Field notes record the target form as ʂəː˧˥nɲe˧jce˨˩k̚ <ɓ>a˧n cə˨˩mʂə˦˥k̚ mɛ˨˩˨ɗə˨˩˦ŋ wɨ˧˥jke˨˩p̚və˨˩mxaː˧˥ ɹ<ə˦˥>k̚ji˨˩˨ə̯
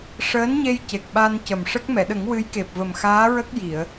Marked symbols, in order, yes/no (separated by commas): yes, yes